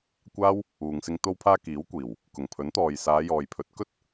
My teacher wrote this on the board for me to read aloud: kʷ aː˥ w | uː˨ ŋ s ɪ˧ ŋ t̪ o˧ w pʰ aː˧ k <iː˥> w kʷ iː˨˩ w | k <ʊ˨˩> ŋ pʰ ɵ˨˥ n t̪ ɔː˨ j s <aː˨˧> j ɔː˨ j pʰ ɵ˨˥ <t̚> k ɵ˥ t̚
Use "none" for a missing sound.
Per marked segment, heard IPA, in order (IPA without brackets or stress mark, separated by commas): iː˨˥, ʊ˨˩, aː˨˧, t̚